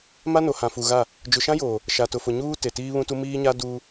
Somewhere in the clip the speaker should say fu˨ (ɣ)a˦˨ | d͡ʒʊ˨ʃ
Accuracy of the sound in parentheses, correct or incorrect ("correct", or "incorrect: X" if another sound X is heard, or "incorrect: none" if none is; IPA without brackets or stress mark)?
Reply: correct